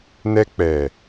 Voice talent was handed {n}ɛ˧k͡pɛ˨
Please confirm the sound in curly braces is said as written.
yes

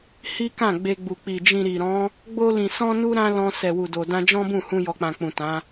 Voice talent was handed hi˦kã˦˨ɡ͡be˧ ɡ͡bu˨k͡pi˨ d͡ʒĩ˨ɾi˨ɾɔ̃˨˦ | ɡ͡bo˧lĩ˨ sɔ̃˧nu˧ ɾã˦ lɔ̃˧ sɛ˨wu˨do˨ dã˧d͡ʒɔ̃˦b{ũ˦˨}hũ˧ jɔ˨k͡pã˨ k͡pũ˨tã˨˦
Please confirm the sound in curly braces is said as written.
yes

